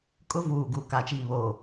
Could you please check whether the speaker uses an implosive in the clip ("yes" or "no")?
no